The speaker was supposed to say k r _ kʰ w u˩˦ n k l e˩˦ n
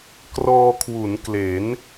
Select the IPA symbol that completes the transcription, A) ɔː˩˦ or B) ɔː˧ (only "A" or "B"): B